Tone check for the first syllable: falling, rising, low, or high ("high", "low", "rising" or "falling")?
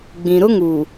low